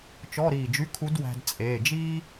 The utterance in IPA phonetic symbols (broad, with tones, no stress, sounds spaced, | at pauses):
t͡ʃ ɔ˧˥˧ ɾ iː˧˩ d͡ʒ y˧˥˧ kʰ u˧˥ d w æ̤˧ d t͡sʼ eː˩˧˩ d͡ʒ iː˥